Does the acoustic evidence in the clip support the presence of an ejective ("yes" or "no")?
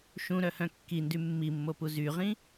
no